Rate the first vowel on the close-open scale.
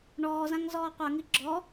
mid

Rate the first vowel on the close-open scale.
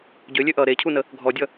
mid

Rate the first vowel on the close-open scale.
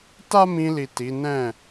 open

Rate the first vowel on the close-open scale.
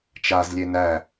open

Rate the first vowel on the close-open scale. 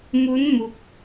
close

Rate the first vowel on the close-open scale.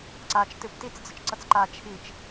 open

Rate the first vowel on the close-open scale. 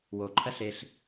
mid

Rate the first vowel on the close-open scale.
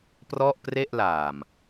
mid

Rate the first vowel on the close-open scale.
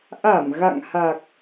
open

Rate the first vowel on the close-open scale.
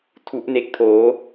close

